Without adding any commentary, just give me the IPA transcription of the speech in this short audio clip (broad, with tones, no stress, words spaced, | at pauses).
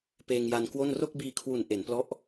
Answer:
peː˧ŋja˧n kwo˥˩n ro˥˩k̚biː˧kʰwu˨˩n ʔe˩˦nplɔ˦˥ʔ